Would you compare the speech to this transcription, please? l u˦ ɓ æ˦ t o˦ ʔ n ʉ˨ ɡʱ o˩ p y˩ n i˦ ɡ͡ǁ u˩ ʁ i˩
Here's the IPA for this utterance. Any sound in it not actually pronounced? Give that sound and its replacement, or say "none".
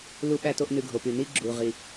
none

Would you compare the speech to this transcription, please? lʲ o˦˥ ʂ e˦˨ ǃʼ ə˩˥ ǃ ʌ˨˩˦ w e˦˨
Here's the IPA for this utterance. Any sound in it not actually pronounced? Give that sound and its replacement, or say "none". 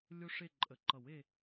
none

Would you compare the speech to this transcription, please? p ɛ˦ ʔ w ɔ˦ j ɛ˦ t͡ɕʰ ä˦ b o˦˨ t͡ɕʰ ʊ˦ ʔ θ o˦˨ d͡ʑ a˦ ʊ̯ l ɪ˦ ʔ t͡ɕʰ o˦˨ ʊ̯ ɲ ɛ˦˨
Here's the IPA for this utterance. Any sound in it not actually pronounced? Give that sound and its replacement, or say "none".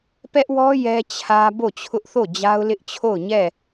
none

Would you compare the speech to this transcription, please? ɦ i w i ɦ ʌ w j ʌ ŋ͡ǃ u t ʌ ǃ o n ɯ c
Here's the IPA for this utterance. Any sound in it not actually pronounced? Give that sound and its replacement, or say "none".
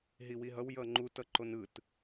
c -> t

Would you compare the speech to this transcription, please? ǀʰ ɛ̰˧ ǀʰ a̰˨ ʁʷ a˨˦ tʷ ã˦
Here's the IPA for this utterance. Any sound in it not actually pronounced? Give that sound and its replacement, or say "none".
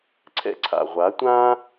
none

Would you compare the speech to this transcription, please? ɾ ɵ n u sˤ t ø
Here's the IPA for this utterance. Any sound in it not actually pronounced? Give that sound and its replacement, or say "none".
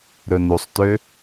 none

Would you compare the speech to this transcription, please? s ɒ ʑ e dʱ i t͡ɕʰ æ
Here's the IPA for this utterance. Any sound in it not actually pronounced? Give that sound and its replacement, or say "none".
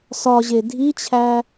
none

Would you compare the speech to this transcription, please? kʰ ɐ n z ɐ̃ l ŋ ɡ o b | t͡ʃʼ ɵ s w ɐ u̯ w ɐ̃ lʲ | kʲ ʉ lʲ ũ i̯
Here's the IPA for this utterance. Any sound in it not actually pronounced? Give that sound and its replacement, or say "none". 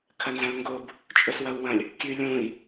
none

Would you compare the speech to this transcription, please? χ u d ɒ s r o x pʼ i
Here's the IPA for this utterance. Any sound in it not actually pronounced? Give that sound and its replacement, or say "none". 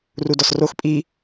χ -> r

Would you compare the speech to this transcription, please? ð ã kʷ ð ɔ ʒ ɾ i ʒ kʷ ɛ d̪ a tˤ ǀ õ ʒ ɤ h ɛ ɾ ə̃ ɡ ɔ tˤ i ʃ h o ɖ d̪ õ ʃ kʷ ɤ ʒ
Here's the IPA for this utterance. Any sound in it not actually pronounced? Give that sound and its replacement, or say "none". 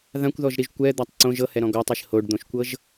ə̃ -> ɔ̃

